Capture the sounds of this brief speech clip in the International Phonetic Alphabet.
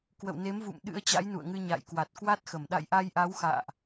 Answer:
k w ə̰˧˨ w n e˨˦ m v ṵ˧˨ m ɗ ɨ̰˧˥ ə̯ t͡ɕ a̰˧˥ j n ṵ˧˨ ə̯ ŋ ɨ˧ ɲ a̰˧˨ j k w a˨˩ t̚ k w a˦˥ t̚ x ə˧˩ m ɗ a̰˧˨ j ʔ a˧ j ʔ a˨˦ w x a̰ː˧˨ ʔ

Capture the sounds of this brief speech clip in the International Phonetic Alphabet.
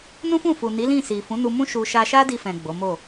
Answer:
n ũ˦ f ũ˦˨ f u˨ n i˨˦ l ĩ˦˨ s i˨ f ũ˨˦ n u˧ m ũ˦ ʃ u˧ ʃ a˧ ʃ a˦ d i˧ f ɛ̃˨ ɡ͡b o˨˦ m o˦˨

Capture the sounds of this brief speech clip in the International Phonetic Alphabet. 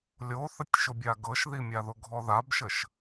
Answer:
lʲ o θ ə tʲ ʃ ʊ bʲ a ɡ ɤ ʃ ð i mʲ a ð ʊ ɡʱ ɔ ð a b ʃ ə ʃ

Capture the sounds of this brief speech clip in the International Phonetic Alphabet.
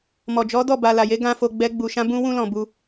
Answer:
m ɔ˨ d͡ʒ ɔ˨˦ d ɔ˦˨ b a˨ l a˨ j e˨˦ ɡ ã˦ f o˧ ɡ͡b ɛ˧ ɡ͡b u˨ ʃ ã˧ b ũ˧ w ũ˧ l ɔ̃˨ b u˧

